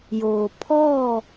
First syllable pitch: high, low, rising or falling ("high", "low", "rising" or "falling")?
low